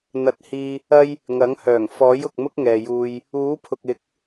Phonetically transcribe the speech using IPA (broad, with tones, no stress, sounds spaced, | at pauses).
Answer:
n̪ ɐ˨˥ t̚ h iː˧ | ɐ˥ j | ŋ ɐ˨˥ ŋ h œː˨˩ ŋ f ɔː˨˥ j ʊ˨ k̚ m ʊ˥ k̚ ŋ ɛː˨ j uː˧ j | uː˨˥ pʰ ʊ˨ k̚ ɪ˨˥ k̚